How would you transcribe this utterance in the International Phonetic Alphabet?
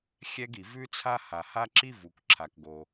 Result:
xʲ ɛ˥ ɡ i˩ v ʉ˥ t͡sʰ a˥ h a˩ h a˥ ǁ i˥ v u˩ k ǁʰ a˩ k ɡ o˩

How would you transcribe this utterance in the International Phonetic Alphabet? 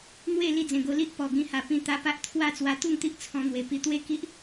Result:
n̪ w e˥˧ l i˥˧ d͡z ẽ˨˩ ɡ o˧ l i˦ ʔ p ɔ˨˩ ɡ ĩ˧ h a˨˩ p ĩ˧ t̪ a˧ p a˦ ʔ t̪ʰ w a˥˧ t͡s w a˧ t̪ u˥˧ ŋ t̪ i˦ ʔ t͡sʰ ɔ̃˧ n̪ w e˨˩ p i˧ t̪ w e˥˧ k i˦ ʔ

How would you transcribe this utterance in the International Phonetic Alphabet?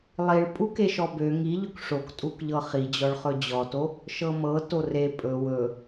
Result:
lˠ i ɭ pʼ u k e ʃ ɔ b ø ŋ i ʎ ɵ k ʂ o k tʼ u k ʎ ɤ χ i d͡ʑ ɔ ɭ χ ɵ d͡ʑ ɔ t o | ʃ ɤ m ɤ t o r e pʼ ɵ w ɵ

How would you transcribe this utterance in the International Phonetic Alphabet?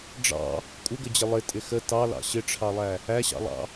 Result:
ɖ͡ʐ ɑ̰ | kʷʼ ɪ ɡ ə d͡ʑ ɪ lˠ ɪ tʼ ɪ x ə t ɑ l ɑ̰ ɕ ɪ ʈ͡ʂʰ ɑ lˠ æ | æ ɕ ɑ̰ lˠ ɑ̰

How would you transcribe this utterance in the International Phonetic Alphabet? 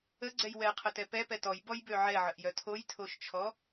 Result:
ə ɡ͡ǀ ɛ j w ɛ qʰ ə t ɛ p ɛ p ɛ t ɔ j b ɔ j b ø ʕ ɛ ʕ ə ʔ j œ tʰ o j tʰ o ʃ t͡ʃʰ ɔ

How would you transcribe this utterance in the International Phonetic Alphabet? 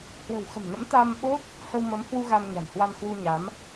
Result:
h w ə̤˨˩ w x ə̤˨˩ m n ə̰˧˥ m t̪ a˧ m ɓ o˦˥ t̚ | h ə˧ w m ə˨˦ m h w u˧ ɣ a˧ m ɲ a̤˨˩ n h w a˧ n h w u˧ ɲ a˨˦ m

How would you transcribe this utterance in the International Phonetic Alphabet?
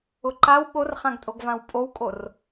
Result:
ʊ ǃ a w ɓ o r χ ã ɡ tʼ o ɡ v ã w pʼ o w kʼ o r

